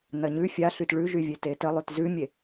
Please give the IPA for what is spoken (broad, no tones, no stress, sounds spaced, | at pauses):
n ɐ ɲ ʉ fʲ a ɬ y t ɭ ʉ ʒ y vʲ e t e t ə lˠ ʉ t z ʉ mʲ e